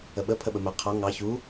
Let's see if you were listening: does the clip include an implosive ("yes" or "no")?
yes